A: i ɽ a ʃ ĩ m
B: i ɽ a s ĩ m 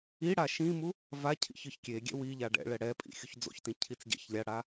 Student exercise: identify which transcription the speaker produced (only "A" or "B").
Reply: A